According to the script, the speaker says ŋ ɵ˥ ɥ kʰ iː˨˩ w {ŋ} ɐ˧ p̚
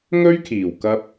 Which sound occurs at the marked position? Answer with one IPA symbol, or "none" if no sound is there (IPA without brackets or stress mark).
k